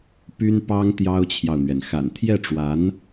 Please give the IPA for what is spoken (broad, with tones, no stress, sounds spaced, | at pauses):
p y˥ n p ɑ˥ ŋ t̪ j ɑ˥ ʊ̯ t͡ɕʰ j ɑ˨ ʊ̯ n̪ ɥ ɛ˩ n x a̰˨˩ n t̪ʰ j ɛ˥˩ ʈ͡ʂ w a˧˥ n